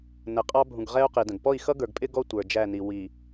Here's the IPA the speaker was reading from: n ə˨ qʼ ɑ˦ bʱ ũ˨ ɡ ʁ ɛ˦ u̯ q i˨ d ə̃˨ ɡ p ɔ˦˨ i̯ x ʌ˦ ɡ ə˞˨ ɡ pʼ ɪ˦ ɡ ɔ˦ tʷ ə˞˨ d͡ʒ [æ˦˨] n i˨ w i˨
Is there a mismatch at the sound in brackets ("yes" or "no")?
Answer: no